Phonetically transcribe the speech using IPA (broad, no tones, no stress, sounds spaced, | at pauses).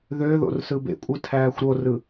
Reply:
ð ø ð o̰ r s ɯ b ḛ kʷʼ ɯ tʰ æː xʷ ɾ o r ɯ